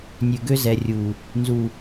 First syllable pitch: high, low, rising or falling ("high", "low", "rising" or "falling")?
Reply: low